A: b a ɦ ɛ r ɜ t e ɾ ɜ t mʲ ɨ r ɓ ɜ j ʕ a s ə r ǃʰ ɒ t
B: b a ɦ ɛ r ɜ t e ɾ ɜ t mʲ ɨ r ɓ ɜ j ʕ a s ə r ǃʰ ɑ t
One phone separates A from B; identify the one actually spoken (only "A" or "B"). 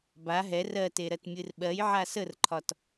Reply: A